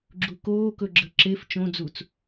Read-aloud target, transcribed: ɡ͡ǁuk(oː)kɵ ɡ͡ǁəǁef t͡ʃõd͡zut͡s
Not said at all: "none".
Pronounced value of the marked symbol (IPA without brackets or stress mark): oː